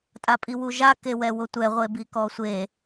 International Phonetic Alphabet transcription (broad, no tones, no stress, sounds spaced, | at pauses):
tʼ a pʼ i w u ʒ a k e w ɛ w ʊ tʷ ɛ ʁʷ e b i k ɔ sʷ e